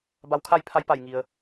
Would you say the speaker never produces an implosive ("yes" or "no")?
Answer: yes